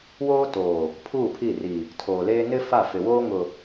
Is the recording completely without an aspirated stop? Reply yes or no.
no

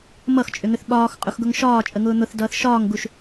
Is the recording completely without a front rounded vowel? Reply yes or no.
no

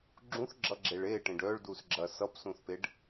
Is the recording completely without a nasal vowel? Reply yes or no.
no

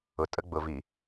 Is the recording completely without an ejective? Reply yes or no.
no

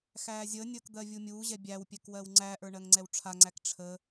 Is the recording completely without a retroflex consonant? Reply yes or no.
no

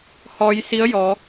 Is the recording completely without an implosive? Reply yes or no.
yes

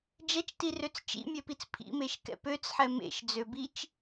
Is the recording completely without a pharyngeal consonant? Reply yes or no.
no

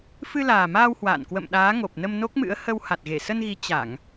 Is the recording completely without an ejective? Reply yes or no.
yes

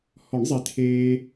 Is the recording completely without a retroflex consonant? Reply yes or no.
no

